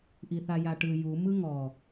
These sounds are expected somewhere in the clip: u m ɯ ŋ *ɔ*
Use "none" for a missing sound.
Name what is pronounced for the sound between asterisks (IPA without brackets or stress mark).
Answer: ɔ